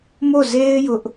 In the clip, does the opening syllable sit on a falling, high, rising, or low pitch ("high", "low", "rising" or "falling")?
falling